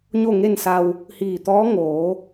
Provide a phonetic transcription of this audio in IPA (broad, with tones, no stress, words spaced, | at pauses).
ɲo˥˨ŋe˥˨nsa˧w | hiː˧˩t̪ɔː˧˥ ŋoː˩˧